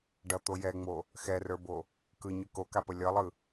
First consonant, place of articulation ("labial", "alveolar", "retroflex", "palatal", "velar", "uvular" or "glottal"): retroflex